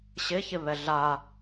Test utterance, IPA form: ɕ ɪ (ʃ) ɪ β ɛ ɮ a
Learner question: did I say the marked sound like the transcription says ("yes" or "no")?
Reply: no